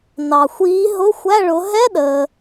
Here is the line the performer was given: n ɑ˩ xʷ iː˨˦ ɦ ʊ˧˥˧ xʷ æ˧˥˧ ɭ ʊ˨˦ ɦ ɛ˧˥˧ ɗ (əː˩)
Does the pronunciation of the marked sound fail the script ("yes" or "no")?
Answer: no